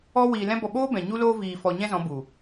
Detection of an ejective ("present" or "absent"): absent